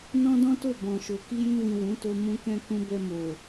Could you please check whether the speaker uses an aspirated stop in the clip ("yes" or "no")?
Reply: no